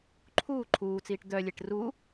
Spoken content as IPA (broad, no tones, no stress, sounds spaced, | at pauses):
ǃʰ uː ǃʰ uː t͡s iː ʈ d̪ œ lʲ e ʈ r u